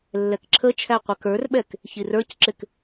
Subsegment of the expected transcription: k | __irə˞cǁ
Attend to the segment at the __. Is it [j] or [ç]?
ç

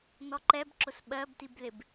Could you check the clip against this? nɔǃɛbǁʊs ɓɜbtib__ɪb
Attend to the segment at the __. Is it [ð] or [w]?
ð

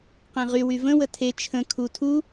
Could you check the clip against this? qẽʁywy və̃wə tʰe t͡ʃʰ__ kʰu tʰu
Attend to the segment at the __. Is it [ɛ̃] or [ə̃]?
ə̃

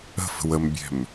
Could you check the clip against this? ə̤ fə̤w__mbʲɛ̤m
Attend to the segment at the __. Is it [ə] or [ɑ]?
ə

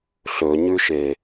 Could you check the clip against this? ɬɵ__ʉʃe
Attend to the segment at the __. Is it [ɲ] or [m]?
ɲ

